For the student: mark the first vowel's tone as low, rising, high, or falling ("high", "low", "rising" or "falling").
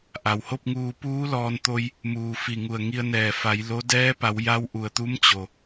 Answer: low